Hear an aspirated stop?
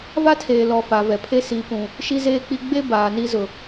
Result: yes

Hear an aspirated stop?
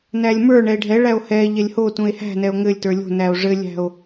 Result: no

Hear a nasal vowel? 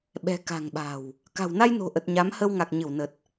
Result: no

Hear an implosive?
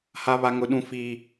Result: yes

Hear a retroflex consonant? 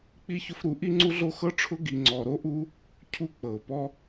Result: yes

